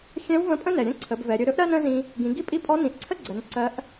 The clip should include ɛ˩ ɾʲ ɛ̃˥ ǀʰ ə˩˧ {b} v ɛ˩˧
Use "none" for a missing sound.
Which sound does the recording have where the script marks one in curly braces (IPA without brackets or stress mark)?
b